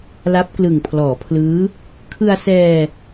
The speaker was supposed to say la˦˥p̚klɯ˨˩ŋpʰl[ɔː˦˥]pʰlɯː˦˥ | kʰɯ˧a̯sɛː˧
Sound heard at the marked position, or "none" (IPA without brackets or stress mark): ɔː˩˦